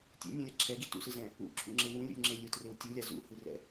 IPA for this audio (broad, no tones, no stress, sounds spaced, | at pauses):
tʲ ḛ nʲ ũ lʲ a ǁʰ ɛ ɡ i t ṵ s ɯ z ɛ̃ | ṵ ǁʰ ṵ ŋ͡ǁ e w ũ lʲ ṵ lʲ ŋ͡ǁ e lʲ u t r e w tʲ ɯ lʲ a z ṵ h ɯ r ɛ̰